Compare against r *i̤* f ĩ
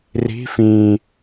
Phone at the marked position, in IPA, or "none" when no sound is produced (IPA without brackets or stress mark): i̤